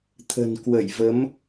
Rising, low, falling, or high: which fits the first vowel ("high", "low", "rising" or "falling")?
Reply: low